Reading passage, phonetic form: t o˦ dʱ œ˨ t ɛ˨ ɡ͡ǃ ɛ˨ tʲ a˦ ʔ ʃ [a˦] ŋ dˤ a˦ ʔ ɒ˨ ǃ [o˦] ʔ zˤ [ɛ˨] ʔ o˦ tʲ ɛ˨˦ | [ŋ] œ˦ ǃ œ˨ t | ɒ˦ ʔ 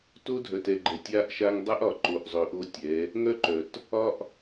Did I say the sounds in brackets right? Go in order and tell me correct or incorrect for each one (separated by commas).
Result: correct, incorrect, incorrect, correct